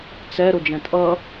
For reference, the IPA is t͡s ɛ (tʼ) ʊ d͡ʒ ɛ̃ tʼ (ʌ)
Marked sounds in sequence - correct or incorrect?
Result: incorrect: ɾ, correct

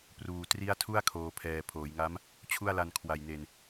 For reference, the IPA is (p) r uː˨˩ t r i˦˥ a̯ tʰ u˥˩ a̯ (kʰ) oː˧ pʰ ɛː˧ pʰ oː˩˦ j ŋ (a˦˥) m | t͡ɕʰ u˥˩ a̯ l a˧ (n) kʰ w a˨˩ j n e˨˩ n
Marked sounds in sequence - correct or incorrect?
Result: correct, correct, correct, correct

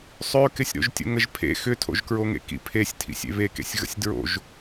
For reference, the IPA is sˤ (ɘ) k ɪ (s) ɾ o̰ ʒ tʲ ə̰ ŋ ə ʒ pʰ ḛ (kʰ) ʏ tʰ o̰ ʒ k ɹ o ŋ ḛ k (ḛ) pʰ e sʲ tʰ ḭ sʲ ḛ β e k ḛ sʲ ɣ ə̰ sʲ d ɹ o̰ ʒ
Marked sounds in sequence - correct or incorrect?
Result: incorrect: ø, incorrect: sʲ, incorrect: x, incorrect: ḭ

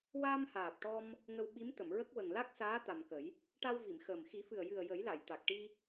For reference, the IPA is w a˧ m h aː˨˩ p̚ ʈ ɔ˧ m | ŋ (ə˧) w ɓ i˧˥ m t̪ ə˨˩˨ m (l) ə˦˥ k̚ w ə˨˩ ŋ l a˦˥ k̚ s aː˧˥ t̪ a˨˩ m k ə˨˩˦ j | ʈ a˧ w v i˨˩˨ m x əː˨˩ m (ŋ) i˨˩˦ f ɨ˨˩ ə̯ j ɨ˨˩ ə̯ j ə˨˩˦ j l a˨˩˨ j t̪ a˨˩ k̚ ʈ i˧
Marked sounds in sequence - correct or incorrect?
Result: correct, incorrect: ɹ, incorrect: x

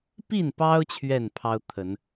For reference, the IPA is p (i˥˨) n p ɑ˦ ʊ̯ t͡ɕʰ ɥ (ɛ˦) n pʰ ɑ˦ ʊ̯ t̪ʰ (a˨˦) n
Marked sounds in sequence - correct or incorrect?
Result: correct, incorrect: ɛ˥˨, incorrect: ə˨˦

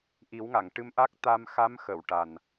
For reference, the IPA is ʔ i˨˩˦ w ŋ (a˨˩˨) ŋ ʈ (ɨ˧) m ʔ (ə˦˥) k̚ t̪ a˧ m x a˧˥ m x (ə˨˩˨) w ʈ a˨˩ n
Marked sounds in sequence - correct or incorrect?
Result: correct, correct, incorrect: a˦˥, correct

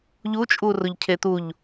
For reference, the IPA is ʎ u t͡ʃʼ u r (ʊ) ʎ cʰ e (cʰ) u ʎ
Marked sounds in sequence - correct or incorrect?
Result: correct, incorrect: t̪

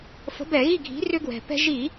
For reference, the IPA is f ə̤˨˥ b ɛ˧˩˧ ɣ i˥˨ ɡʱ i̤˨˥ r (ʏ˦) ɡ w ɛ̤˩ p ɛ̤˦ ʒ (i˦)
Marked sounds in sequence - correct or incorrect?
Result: correct, incorrect: i˧˩˧

